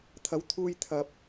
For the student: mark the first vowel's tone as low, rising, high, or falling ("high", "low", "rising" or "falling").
rising